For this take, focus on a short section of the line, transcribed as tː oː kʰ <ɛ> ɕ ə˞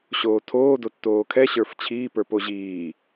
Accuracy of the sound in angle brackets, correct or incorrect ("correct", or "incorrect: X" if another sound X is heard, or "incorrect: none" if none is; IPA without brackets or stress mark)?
correct